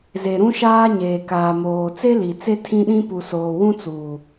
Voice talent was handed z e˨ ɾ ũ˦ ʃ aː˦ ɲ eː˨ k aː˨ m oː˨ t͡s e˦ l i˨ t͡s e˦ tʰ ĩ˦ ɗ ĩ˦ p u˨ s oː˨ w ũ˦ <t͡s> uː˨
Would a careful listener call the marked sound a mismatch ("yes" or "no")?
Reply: no